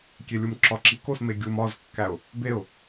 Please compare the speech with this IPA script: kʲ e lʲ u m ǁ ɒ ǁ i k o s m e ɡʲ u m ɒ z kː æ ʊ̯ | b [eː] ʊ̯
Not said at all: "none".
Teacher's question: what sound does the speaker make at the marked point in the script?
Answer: e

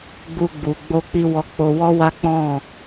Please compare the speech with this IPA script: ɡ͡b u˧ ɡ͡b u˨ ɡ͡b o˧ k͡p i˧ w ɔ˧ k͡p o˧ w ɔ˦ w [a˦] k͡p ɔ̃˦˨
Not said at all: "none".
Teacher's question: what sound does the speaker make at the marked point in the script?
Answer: a˦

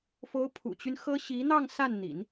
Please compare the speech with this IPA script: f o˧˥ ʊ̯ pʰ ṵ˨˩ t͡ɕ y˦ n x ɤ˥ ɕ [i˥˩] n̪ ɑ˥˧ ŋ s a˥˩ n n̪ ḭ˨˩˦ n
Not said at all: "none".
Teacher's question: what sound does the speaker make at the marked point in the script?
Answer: i˧˥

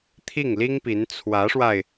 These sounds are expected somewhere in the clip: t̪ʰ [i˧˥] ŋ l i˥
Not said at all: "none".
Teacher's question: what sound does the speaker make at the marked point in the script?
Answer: i˥˩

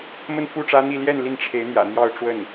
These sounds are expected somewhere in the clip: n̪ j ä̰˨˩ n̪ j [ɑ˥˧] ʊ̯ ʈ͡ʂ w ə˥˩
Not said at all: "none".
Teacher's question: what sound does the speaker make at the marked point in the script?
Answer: ɑ˥˧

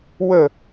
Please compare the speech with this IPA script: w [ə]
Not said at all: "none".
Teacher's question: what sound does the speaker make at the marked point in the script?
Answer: ə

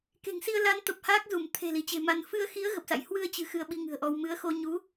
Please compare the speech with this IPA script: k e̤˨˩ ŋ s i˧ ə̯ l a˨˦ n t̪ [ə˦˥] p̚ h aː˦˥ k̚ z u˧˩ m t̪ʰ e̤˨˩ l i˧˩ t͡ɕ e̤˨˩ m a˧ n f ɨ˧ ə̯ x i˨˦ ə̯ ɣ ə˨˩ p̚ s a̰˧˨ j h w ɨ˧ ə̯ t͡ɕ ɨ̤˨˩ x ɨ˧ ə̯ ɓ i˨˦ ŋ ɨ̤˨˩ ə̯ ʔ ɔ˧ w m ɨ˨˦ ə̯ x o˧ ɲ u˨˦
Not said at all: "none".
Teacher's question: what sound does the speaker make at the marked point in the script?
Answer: ə˨˩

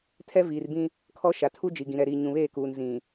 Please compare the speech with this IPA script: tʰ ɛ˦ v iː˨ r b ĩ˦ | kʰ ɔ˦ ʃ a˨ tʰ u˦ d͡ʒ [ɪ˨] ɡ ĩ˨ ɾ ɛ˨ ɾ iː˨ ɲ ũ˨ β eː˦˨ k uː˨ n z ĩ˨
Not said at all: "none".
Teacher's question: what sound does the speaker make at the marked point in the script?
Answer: i˨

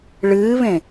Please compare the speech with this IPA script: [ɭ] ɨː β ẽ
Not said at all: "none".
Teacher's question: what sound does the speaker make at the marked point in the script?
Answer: ɭ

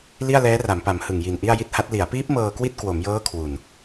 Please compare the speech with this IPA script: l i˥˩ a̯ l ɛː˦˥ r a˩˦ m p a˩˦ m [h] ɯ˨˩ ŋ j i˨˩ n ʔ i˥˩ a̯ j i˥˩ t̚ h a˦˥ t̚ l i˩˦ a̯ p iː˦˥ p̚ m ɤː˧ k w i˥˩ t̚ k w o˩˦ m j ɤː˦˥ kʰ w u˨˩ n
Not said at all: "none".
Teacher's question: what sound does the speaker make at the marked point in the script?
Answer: h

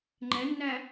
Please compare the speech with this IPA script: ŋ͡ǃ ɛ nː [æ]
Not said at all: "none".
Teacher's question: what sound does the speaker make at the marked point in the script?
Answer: æ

